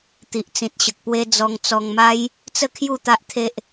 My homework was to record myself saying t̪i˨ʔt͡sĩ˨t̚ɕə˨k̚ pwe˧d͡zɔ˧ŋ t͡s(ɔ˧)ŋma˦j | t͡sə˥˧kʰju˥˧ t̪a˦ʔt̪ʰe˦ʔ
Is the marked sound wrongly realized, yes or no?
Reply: no